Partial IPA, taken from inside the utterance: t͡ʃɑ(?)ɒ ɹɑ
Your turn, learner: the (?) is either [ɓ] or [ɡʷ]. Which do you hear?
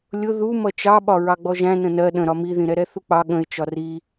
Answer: ɓ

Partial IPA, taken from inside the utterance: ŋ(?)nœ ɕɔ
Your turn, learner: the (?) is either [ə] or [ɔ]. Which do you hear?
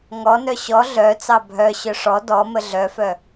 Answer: ɔ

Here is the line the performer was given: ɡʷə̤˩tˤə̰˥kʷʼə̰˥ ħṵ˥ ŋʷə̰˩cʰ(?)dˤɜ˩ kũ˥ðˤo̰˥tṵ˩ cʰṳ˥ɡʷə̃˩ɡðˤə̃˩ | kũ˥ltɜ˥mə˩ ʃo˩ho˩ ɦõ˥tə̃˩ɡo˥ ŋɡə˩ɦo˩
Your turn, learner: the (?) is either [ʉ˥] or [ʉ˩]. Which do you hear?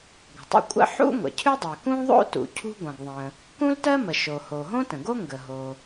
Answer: ʉ˥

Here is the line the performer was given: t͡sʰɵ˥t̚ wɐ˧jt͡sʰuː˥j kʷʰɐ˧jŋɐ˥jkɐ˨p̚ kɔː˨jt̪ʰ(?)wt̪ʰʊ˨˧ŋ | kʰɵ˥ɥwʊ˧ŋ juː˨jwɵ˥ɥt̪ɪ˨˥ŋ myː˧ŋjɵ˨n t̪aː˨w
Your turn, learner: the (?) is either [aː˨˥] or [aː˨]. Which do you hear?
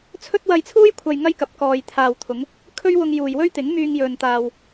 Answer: aː˨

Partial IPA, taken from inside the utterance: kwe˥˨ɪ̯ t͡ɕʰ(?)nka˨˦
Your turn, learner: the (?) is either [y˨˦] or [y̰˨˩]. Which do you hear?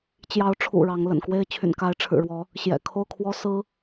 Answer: y̰˨˩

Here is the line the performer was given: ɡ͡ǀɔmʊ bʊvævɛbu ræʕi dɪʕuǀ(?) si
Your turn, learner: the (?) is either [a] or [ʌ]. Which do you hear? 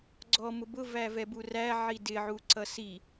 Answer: ʌ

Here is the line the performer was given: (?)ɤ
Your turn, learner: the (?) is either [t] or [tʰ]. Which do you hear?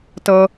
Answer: t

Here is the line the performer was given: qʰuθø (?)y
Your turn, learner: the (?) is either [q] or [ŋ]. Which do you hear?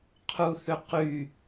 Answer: q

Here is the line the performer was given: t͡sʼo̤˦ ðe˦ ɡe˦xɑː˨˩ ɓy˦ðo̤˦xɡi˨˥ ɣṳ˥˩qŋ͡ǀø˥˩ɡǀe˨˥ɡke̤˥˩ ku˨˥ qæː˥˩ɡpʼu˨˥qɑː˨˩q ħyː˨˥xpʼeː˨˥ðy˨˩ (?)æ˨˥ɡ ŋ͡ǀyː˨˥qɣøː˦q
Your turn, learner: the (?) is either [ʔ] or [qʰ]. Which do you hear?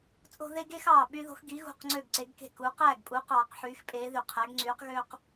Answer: qʰ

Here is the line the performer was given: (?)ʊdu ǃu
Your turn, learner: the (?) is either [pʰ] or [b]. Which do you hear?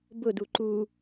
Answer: b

